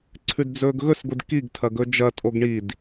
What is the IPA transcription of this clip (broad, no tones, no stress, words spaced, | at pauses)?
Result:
ǀʰʉdd͡zɵːɡɣɵs ɡʷɨdkiɡ tʰɐɡɵd͡ʒɐ tʼoɡɳid